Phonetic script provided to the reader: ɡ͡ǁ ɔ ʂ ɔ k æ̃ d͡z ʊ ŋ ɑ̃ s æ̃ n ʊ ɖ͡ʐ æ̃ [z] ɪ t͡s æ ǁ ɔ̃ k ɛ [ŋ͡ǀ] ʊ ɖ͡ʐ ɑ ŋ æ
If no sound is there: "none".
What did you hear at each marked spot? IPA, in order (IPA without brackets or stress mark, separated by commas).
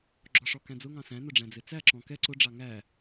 d͡z, ǀ